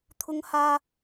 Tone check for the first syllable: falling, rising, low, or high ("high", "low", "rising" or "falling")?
high